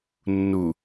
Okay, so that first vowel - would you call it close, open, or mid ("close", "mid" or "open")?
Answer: close